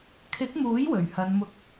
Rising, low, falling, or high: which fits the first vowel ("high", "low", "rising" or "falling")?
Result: rising